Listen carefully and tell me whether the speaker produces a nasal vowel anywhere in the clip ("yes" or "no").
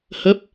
no